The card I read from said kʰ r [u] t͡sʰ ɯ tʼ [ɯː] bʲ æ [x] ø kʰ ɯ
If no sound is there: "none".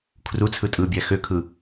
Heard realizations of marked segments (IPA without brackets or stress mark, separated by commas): u, ɯː, x